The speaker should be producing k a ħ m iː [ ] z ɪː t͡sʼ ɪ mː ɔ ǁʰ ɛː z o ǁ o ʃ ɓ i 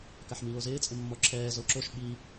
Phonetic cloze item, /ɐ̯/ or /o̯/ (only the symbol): o̯